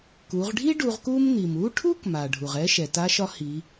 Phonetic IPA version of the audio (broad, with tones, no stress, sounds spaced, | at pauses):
k u˩˧ ʁ ɖʱ i˥ ɖ u˧ ʁ k u˥ m n̪ i˩ m u˧˥ ʈʰ u˥ k m a˩ ɖʱ u˩ ʁ ɛ˧˥ ʃ ɛ˩ t a˧˥ ʃ ɒ˧˥ h i˩˧